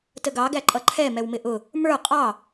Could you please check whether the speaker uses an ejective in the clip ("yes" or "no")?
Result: yes